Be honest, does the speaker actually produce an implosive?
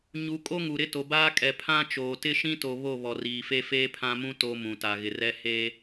no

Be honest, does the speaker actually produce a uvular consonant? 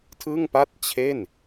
no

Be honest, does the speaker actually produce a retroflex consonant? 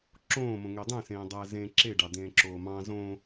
yes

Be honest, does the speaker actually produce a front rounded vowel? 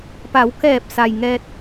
no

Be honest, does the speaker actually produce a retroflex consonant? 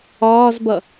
no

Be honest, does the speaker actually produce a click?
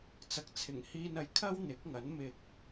no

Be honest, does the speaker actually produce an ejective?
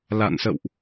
no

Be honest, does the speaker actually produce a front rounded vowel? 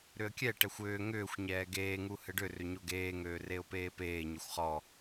yes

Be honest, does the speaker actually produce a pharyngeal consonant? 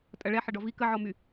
yes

